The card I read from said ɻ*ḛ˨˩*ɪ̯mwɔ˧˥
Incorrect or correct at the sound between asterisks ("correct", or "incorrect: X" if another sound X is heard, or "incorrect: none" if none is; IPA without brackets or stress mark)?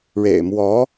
correct